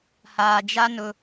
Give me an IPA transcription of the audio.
haː˨d͡ʒa˦ nʊ˦

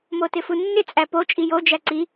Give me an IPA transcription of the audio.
motɪfunːɪ t͡sʼæpo t͡ʃʼijo d͡ʒæǀi

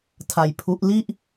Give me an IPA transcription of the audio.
tʰa˧jpʰu˦˥ʔ li˥˩ʔ

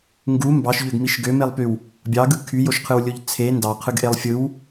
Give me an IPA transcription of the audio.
ŋɡu mbɑʃʎøɡmiʃ ɡømelˠpyw | bʲɑɡɯ kʰyjoʃqʰɯwlʲoʎ t͡sʰe ndɑqʰɯɡʔelˠ fʲɯw

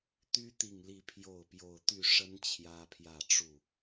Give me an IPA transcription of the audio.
t̪y˦ t̪i˥˨ŋ li˥˨pʰjo˥˨ʊ̯pjo˥˨ʊ̯ t̪y˥˨ʂə˦n t͡ɕʰjä˦pʰjä˥˨ʈ͡ʂu˥˨

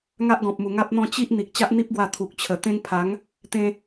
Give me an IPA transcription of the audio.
ŋa˦ʔɡɔ̃˨p̚mu˨˩ ŋa˦p̚n̪ɔ̃˥˧ t͡ɕi˦ʔ n̪i˨k̚t͡ɕa˦ʔn̪i˦p̚ɡwa˧ t̪ʰu˨k̚t͡ɕʰə˨˩t̪ẽ˦ŋ pʰa˨˦ŋ | t̪ẽ˧

